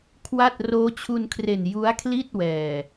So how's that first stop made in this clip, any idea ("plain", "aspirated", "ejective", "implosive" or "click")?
aspirated